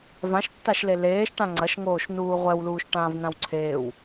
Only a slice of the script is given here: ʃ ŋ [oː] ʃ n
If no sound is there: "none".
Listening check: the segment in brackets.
oː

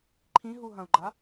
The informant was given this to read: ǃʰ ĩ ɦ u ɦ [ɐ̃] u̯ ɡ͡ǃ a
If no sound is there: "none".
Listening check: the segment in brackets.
ɐ̃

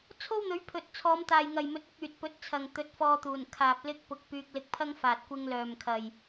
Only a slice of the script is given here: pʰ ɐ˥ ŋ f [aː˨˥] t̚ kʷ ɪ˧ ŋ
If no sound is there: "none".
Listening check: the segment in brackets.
aː˨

